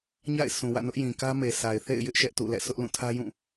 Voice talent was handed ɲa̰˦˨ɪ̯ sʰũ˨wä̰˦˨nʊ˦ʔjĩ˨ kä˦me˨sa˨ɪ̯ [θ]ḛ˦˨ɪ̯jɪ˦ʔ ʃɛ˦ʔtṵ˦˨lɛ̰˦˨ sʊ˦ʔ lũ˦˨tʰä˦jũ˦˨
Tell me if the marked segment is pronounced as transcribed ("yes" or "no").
yes